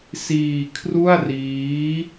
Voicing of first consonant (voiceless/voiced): voiceless